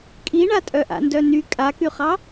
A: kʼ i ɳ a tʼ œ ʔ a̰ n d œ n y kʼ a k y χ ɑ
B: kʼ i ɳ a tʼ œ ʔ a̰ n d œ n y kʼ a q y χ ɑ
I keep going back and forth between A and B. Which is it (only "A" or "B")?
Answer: A